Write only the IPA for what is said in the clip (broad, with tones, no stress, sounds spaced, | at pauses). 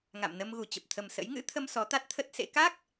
ŋ a̰˧˨ m n ə˧ m ɣ u˨˩ t͡ɕ ə˨˩ p̚ t̪ʰ ə˨˩ m s ə̰˧˥ j ŋ ɨ̰˧˥ t̪ʰ ə˧ m s ɔ˨˦ t̪ a˦˥ t̚ t̪ʰ ə˦˥ t̚ s ḛ˧˥ k a˦˥ k̚